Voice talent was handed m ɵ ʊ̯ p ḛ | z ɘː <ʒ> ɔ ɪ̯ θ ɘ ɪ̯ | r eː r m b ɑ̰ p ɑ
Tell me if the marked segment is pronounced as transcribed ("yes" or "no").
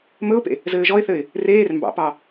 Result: yes